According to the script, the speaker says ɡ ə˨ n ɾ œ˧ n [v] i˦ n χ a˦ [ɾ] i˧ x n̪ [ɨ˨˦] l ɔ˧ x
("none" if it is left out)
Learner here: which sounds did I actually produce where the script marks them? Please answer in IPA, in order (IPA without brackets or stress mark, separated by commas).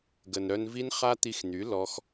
v, t̪, y˨˦